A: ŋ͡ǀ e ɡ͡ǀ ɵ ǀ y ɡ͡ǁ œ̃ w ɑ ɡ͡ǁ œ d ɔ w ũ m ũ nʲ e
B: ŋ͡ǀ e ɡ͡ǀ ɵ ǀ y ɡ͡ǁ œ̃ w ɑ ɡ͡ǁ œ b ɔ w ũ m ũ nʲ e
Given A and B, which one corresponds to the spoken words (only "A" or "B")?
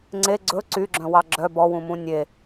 B